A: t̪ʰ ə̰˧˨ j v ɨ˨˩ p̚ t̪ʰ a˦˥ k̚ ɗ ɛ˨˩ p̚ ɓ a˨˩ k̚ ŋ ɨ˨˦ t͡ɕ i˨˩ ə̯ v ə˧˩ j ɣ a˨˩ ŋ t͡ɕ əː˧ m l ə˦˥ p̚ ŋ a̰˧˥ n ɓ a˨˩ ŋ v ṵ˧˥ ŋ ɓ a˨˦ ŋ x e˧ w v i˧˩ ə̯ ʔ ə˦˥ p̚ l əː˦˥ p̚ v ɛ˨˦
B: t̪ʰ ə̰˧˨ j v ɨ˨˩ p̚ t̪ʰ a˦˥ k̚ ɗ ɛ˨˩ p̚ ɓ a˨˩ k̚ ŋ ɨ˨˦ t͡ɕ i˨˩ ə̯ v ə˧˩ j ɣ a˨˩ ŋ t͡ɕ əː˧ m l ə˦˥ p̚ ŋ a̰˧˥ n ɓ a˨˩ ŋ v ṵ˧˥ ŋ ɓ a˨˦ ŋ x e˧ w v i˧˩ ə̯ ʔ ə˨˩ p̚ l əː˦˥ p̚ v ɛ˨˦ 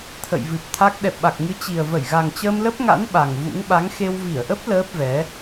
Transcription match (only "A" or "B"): A